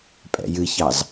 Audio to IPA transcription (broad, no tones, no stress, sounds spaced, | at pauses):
pʼ ɛ̰ j ɨ ç ɑ z